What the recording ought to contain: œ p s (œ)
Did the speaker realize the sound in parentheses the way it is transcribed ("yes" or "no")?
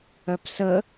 no